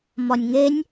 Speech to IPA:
m ɒ nʲ ŋ e nʲ

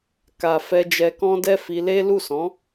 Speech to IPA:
k a˨ f ɛ˧ d͡ʒ ɛ˧ k ɔ̃˦ d ɛ˦ f i˧ l e˦ l u˦˨ s ɔ̃˨˦

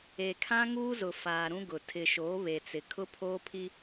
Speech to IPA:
e˨ kʰ ã˦ ŋ uː˦ z ʊ˨ f aː˨ ɾ ũ˦ ɡ ʊ˨ tʰ ɪ˨ ʃ oː˨˦ β e˨ t͡s ɪ˨ kʰ ʊ˦ pʰ oː˦ pʰ i˦

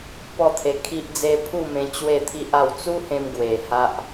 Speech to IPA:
p ɔ˥˧ t̪ʰ e˧ kʰ i˦ ʔ d͡z e˦ pʰ u˥˧ m ẽ˧ t͡ɕ w e˥˧ t̪ʰ i˦ ʔ a˥˧ w t͡s u˦ h ẽ˧ m ɡ w e˨˩ h a˦ ʔ

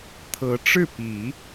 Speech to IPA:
t̪ʰ ɤ˧˥ ʈ͡ʂ ɻ̩˥˩ p i˨˩˦

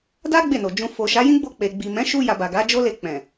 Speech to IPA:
d a˦ ɡ͡b e˦˨ n o˨ d͡ʒ ũ˧ f o˨ ʃ a˨˦ j ĩ˦ ɡ͡b o˧ k͡p e˨ ɡ͡b i˨ m ɛ̃˨˦ ʃ u˧ j a˨ b a˨ ɡ a˨˦ d͡ʒ o˦ l e˧ k͡p ɛ̃˨

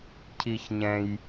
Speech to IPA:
cʰ i˧ ç ɲ ɛ̃˧ j

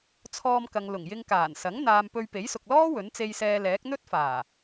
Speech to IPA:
t͡sʰ ɔː˧ m k ɐ˨ ŋ l ʊ˨˩ ŋ j ɪ˧ ŋ k aː˨˩ n s ɐ˨˥ ŋ n̪ aː˨ m p ɵ˧ ɥ p e˨˥ j s ʊ˨ k̚ l ɔː˥ w ɵ˨˥ n t͡s e˧ j s ɛː˧ l ɛː˨˥ k̚ n̪ ɵ˥ t̚ f aː˨˩

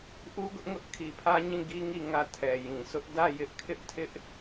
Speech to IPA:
ʔ u˦ ɡ ʊ˦ ʔ ŋ ʊ˦ ʔ kʰ i˨ pʰ ä˦ ɲ ĩ˦˨ ɡ i˦ ŋ i˦˨ ŋ ä˦˨ tʰ ɛ˨ j ĩ˨ s ʊ˦ ʔ d ä˦˨ j ɪ˦ ʔ kʰ ɪ˦ ʔ tʰ ɪ˦ ʔ

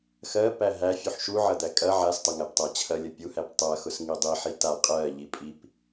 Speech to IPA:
x ɜ p æ ɦ æ fʲ u ħ ʃ u ʕ ɐ d̪ æ kʼ ɐ ʕ a s tˤ ɐ ŋ æ p tˤ ɜ t͡ɕʰ ɐ lʲ ɐ pʲ u h æ p tˤ ɜ x ʊ s ŋ i dˤ i ħ i t a qʼ ɜ ʎ i pʼ i p

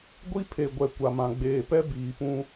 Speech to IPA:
ɡʷ i˦ pʰ e˨ ɡʷ ɛ˨ kʷ a˨ m ã˨ ɡ͡b eː˨ p ɛ˦ b iː˨ p ũ˦

